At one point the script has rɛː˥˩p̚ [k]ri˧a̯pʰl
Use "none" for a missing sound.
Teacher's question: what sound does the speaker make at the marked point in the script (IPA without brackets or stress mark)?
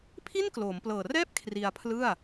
kʰ